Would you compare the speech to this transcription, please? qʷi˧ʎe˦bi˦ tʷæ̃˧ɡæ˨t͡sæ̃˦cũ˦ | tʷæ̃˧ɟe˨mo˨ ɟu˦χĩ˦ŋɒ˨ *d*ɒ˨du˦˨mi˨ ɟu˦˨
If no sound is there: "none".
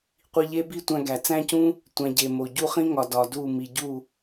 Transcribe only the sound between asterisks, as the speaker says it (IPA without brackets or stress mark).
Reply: d